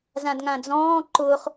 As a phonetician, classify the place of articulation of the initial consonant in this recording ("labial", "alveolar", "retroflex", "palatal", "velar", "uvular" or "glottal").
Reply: alveolar